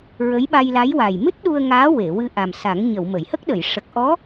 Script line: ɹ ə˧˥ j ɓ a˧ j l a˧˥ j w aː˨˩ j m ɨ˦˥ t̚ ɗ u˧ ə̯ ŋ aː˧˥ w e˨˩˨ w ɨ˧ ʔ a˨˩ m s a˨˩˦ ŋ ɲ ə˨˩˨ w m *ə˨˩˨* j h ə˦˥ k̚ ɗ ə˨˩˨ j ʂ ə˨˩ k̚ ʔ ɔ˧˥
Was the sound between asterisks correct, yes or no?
yes